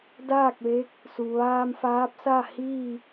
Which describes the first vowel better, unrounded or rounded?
unrounded